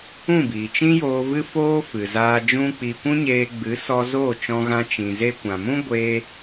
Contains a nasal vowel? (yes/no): yes